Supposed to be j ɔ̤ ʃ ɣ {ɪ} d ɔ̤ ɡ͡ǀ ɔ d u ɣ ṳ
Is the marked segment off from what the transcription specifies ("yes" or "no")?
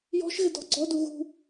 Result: no